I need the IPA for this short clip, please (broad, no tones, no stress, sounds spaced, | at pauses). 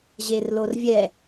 ʑ e r l o r vʲ ɛ